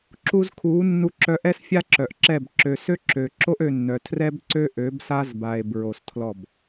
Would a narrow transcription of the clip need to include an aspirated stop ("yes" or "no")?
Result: yes